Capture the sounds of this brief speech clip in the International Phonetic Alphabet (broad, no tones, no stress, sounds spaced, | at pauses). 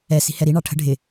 ɛ s i̤ h ɛ ɾ i ɳ ɑ ʈʰ ə̤ ɖʱ ɪ